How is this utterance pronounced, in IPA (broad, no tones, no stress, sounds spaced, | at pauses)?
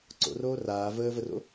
ǀ o̰ r oː r aː v əː v ə r o̰